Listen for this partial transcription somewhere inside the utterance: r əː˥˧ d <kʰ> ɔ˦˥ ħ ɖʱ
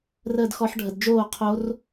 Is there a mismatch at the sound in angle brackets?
yes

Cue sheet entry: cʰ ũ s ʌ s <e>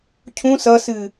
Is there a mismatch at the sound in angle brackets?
yes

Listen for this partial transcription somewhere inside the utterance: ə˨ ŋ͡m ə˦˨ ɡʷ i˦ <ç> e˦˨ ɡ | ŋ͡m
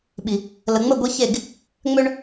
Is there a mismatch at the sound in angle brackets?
no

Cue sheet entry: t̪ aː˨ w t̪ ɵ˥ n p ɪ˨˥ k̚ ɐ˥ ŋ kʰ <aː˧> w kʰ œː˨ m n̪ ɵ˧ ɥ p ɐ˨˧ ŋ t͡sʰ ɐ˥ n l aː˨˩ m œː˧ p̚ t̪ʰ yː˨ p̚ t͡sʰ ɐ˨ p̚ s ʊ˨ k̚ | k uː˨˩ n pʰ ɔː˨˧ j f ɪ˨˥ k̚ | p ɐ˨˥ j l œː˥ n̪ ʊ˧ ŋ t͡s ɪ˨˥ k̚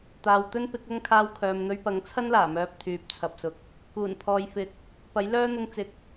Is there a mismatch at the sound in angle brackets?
no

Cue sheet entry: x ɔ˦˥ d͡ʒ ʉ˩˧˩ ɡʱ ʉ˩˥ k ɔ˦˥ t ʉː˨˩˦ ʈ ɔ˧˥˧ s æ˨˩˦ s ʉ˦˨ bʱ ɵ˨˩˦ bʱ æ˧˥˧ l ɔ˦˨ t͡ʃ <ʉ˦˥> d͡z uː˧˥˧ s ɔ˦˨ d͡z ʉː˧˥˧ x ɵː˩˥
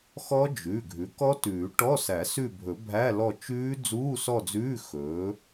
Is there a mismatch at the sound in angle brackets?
yes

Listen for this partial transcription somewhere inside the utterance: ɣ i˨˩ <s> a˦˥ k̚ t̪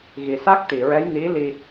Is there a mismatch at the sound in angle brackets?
no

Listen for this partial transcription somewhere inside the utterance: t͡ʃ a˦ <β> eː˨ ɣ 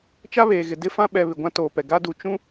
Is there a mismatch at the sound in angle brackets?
no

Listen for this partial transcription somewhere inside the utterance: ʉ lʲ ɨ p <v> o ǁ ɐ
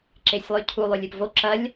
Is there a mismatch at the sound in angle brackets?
no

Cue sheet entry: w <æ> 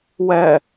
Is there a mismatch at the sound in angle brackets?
yes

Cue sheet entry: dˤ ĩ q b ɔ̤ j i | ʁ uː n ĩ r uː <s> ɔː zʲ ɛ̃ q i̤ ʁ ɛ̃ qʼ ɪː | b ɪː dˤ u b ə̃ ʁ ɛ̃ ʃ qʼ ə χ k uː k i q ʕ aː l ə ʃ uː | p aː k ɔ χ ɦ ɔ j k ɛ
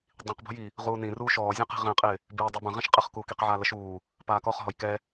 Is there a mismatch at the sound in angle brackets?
yes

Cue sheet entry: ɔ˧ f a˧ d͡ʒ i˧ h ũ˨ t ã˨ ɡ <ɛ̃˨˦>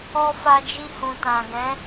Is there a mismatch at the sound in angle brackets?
no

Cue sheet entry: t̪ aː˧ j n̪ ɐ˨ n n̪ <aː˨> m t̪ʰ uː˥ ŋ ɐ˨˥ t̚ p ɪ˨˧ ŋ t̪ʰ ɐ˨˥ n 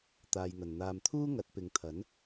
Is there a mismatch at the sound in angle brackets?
no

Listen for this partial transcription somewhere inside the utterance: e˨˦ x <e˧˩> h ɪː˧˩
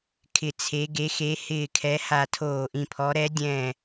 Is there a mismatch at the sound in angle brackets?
yes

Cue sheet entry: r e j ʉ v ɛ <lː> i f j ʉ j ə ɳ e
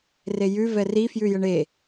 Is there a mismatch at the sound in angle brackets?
yes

